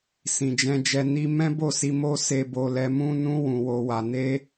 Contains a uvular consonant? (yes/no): no